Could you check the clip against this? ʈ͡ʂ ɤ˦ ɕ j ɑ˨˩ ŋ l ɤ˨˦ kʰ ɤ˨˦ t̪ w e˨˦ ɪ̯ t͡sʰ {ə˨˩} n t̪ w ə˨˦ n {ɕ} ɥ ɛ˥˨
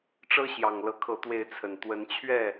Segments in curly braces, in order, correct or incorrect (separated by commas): correct, incorrect